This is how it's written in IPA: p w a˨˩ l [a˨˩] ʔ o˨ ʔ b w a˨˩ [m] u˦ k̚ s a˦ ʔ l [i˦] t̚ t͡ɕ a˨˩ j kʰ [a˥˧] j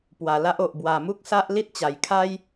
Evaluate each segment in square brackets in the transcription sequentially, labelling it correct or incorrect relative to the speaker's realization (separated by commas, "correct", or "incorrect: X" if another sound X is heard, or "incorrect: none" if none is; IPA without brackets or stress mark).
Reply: incorrect: a˦, correct, correct, incorrect: a˦